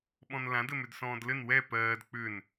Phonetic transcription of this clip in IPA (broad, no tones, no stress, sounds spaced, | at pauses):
ɓ ɔ̃ n l ã d ɘ m ʏ d s ɔ̃ː d l ɘ n w ɛ p ɜː d k͡p ʏ n